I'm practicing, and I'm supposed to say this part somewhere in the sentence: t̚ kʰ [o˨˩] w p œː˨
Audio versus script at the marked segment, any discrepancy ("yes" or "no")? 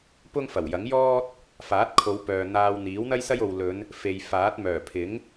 yes